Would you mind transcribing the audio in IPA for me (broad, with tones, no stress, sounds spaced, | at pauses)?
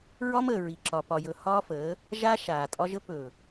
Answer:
ɹ ɒ˦ m əː˨ ɹ i˨ ǁ ɒ˨ p ɒ˨ j ɵ˨ h ɒː˦ f əː˨˦ | ʒ a˦ ʃ aː˨ tʼ ɒ˦ ʒ ə˦ p ɵ˨